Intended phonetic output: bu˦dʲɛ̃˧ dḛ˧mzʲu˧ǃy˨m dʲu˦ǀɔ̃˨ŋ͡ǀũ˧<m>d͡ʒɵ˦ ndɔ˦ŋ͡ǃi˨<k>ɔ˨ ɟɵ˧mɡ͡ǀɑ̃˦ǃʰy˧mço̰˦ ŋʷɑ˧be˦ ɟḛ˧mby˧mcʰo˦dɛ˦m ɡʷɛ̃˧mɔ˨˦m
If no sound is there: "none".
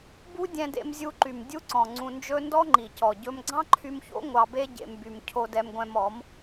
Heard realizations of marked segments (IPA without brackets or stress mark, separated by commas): n, c